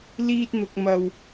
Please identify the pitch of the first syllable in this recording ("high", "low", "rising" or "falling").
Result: high